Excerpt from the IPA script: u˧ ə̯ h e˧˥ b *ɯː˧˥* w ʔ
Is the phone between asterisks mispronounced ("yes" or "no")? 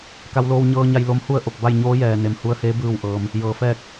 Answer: yes